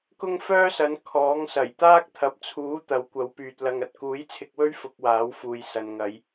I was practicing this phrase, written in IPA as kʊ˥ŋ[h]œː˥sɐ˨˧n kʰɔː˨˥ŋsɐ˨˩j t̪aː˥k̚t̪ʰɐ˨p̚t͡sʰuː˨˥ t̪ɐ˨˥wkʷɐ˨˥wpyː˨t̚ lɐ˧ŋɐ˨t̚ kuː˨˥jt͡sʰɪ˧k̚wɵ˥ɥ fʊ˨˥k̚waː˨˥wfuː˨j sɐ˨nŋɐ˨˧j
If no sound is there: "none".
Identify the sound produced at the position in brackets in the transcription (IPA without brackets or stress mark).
f